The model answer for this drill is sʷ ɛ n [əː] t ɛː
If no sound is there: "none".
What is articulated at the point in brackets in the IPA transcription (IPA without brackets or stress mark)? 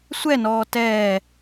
ɔː